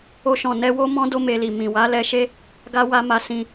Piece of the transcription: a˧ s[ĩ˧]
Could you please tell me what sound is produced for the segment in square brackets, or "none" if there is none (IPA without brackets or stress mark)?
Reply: ĩ˧